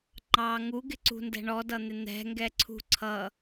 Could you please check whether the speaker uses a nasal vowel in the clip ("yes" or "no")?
no